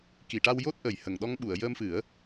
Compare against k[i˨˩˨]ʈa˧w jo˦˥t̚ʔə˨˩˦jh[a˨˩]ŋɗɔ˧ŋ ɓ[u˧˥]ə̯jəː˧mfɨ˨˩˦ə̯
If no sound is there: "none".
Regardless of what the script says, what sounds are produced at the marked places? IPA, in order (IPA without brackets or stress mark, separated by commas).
i˨˩˨, ə˨˩, u˨˩˨